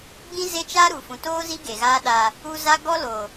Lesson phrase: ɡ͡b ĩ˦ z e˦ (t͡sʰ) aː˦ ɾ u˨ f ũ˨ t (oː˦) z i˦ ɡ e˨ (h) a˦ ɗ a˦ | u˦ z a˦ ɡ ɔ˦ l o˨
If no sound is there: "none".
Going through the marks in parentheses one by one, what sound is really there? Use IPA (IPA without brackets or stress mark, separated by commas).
t͡ʃ, oː˦, ɣ